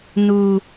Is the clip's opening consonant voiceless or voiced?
voiced